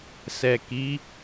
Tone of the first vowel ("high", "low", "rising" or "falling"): low